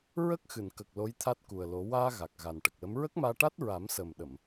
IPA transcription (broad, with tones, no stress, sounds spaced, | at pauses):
ɹ ə˦˥ k̚ x ɨ˨˩˨ n k ə˨˩ k̚ l o˧˥ j t̪ʰ a˦˥ t̚ k u˨˩ ə̯ l o˨˩˦ w aː˧ ɣ a˨˩ k̚ ɣ a˨˩ n ʈ ə˨˩ k̚ l ə˧˥ m ɹ ə˦˥ k̚ m aː˧ ʈ a˦˥ t̚ ɹ a˨˩˦ m s əː˨˩ m ɗ ə˨˩˨ m